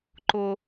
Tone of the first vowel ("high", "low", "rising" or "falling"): high